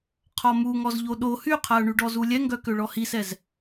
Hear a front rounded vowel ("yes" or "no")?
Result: yes